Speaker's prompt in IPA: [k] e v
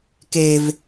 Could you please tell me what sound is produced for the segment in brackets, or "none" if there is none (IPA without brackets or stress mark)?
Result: k